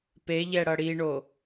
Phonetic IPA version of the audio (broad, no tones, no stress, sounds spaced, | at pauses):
p e ʎ ɛ ɽ ʌ ɽ i ɳ o